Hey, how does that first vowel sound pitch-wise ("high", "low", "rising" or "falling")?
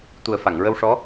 low